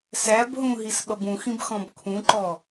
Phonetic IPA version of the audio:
s æ b ɦ ũ ɦ i s ɓ ʌ b ũ x ĩ b x ɔ̃ b kʰ ũ ǃ ɔ

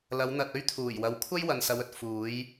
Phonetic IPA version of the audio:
l ɐ˨˧ w n̪ ɐ˨ t̚ ɵ˥ ɥ t̪ʰ uː˨˩ j w ɐ˨ w kʷʰ ɐ˥ j w ɐ˨ n s ɐ˨˧ w ɵ˨ t̚ f uː˨˧ j

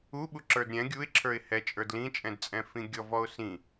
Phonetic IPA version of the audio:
u ɓ u ǁ ə˞ d ɾʲ ɛ̃ ɡʲ u ɪ̯ ǁʰ ə˞ ɪ̯ h ɛ t͡ʃʼ ə˞ d l ĩ t͡ʃʼ ɛ̃ d t͡sʼ ɛ̃ f ĩ ɡʲ ɔ v ɔ ʊ̯ s ĩ

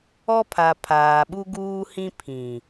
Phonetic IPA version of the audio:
ɔ˦ pʰ a˨ pʰ aː˨ ɓ u˦ ɡ uː˦ h ĩ˦ pʰ ĩ˨

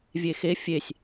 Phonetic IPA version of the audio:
vʲ e x e fʲ e sʲ

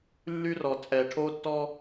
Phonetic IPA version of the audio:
lː y˦ r ɔ˨ t͡sʼ ɛ˨ ʈʰ o˦ tː ɔ˦

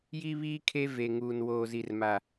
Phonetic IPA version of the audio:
j i˦ β iː˦ kʰ e˦ v e˨ ŋ uː˨ n w oː˨ z i˨ r m a˨

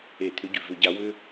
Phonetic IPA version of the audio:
e˧˩˧ t̪ʰ ʏ˨˦ ɟ ʉ˩ v ʏ˧˩˧ ɟ a˨˦ w ʏ˦

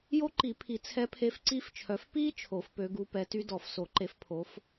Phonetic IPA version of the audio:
j o˦˥ ǃ i˨˩˦ pʰ i˨˩˦ t͡sʰ ɛ˨˦ pʰ e˨˦ f ǀ i˦˥ f t͡ʃʰ œ˨˦ f p i˦˥ t͡ʃʰ o˨˩˦ f p ø˨˦ ɡ u˨˦ p ɛ˨˦ t y˦˥ d ɔ˨˩˦ f s o˨˩˦ ǃ e˨˦ f pʰ o˨˦ f

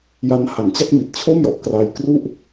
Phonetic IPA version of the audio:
j a˦˥ n h a˨˩ n t͡ɕ a˥˩ k̚ m i˨˩ t̚ t͡ɕʰ o˥˩ m j ɔ˨˩ ʔ k r aː˧ j k r u˥˩ ʔ

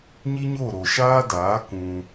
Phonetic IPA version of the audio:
ɲ i˦ ɲ o˦˨ ɾ o˨ ʃ aː˦ d aː˨˦ k ũ˧

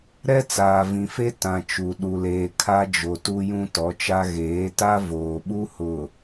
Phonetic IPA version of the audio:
ɾ ɛ˦ t͡s aː˨ v ĩ˨ f e˦ t ã˨ t͡ʃ u˨ ɗ u˨ l eː˨ kʰ a˦ d͡ʒ o˨ t u˦ j ũ˦ t ɔ˨˦ t͡ʃ a˦ ɣ eː˨˦ t a˦ v oː˨ ɓ u˦ h ʊ˨

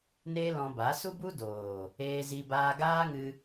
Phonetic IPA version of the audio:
n eː˦ l ɔ̃˧ b a˨˦ s u˦ b u˦ d oː˨ | eː˧ z i˧ b aː˧ ɡ aː˦ ŋ ɨ˧

